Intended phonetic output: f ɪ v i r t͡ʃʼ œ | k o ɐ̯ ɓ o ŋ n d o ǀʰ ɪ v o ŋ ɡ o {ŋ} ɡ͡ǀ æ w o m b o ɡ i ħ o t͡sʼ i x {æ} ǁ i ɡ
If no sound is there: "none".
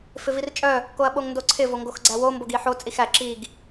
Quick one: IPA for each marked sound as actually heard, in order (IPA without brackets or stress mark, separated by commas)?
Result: x, æ